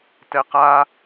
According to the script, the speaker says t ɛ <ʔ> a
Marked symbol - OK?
no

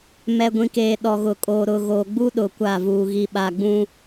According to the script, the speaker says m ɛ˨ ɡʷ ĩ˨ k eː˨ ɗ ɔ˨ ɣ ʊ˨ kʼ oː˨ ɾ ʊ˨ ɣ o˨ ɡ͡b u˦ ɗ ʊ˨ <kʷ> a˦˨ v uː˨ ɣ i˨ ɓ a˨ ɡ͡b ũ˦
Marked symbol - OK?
yes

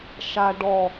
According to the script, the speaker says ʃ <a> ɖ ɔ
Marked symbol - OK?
yes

